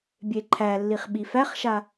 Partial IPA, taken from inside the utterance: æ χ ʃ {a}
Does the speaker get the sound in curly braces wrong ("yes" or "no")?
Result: no